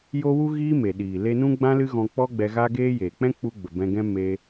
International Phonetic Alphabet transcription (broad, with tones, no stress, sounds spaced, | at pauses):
j o˦ w u˦ ɣ iː˦ m e˨ ɗ iː˨ l e˧ n ũ˦ ɡ͡b ã˦ l ɨ˦ ɣ ɔ̃˧ k͡p ɔ˦ ɡ͡b ɛ˧ ɣ a˦ ɡ eː˦ j eː˨ k͡p ɛ̃˦ k͡p u˧ ɡ͡b ə˨ b ɛ̃˧ ɡ ɛ̃˦ m e˧